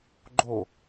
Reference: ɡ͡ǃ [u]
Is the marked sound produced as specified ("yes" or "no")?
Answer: no